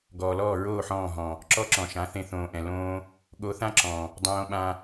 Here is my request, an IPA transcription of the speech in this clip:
ɡ ɔː˨ l ɔː˦˨ ɹ oː˦˨ ħ ɔ̃ː˦˨ ɦ ɔ̃˨ | ǁ ɔ˦ ǁ ɔ̃˨ ʃ ã˨˦ θ ẽ˧ θ õː˨ ʔ ɛ̃˨ l õː˧ | ɠ o˧ θ ã˦ ǁ ɔ̃˨ | dˤ õː˧ ɓ ã˧

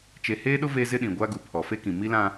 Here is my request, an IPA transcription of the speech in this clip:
t͡ʃ e˨ h eː˦ ɗ ʊ˦ v e˦ z ɪ˦ ɗ ĩ˨ ɡʷ a˦ ɡ u˨ pʰ ɔ˨ f e˦ k ĩ˨ m i˦ l ã˦

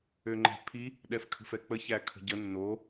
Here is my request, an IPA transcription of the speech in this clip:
ø ŋ͡ǃ ɛ̤ pʰ i | ɗ ɛ f kʰ ə̤ f ɛ k͡p ə ç æ kʰ ə̤ ɟ ə nː o

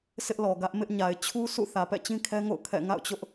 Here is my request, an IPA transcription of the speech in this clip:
sʰ ɪ˦ ʔ l ɔ˨ ɡ ä˦ ʔ m ɪ˦ ʔ ɲ a˨ ɪ̯ t͡ɕʰ u˦ s ṵ˦˨ θ ä˨ p ɛ̰˦˨ t͡ɕ ĩ˦ kʰ ɛ˦ ŋ o̰˦˨ ʊ̯ kʰ ɛ̰˦˨ ŋ a̰˦˨ ʊ̯ t͡ɕ ʊ˦ ʔ

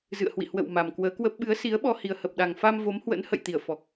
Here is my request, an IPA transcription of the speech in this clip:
z ɨ̰˧˨ ə̯ h w ḭ˧˨ h w ə̰˧˨ w m a˨˩ m k w əː˨˦ k w ə˦˥ p̚ ɓ ɨ˨˦ ə̯ s i˨˦ ə̯ ɓ ɔ˧ h i˨˩ ə̯ h ə˨˩ p̚ ɗ a˨˩ ŋ f a˧ m v o˨˦ m h w ə̰˧˥ n h ə̰˧˨ j t̪ i˧˩ ə̯ f ɔ˨˩ k̚

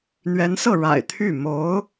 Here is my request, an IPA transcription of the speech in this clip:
n̪ ɥ ɛ˧˥ n s ɤ˥˩ ɻ a̰˨˩ ɪ̯ t̪ʰ y˥˩ m o˧˥ ʊ̯

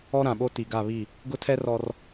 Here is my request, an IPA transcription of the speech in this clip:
ɔ˦ ɾ ã˨ ɓ o˦ t i˨ ɡ a˦˨ β i˦˨ | ɡ ʊ˦ tʰ ɛ˦ r ɔ˦ r

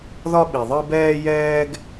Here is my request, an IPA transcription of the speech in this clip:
ð ɒ˦ ɓ i˨ ðˤ ɯ˦ b ɛː˦ j ɛː˦ ɡ

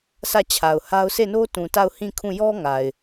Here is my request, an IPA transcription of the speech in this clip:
s ä˦˨ t͡ɕʰ a˨ ʊ̯ h a˦ ʊ̯ sʰ e˦˨ n o˦ t ũ˨ t a˦˨ ʊ̯ h ĩ˦˨ kʰ ũ˦˨ j ɔ˦ ŋ a˨ ɪ̯

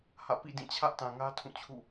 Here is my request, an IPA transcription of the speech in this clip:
h ä̰˦˨ p ḭ˦˨ d ĩ˦˨ t͡ɕʰ ä˦ ʔ t ã˨ ŋ ä˦ tʰ ũ˦˨ t͡ɕʰ ṵ˦˨

